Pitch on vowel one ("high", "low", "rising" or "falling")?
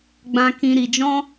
high